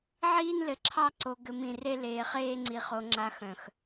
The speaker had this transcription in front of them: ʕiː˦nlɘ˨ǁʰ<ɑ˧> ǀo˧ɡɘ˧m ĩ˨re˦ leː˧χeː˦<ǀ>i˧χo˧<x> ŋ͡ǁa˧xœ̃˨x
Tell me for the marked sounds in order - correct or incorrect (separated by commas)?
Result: incorrect, incorrect, incorrect